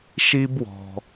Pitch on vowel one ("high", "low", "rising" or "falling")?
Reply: high